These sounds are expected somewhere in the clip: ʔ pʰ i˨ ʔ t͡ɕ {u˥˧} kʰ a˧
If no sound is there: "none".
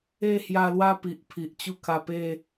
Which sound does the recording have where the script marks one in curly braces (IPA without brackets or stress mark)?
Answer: u˥˧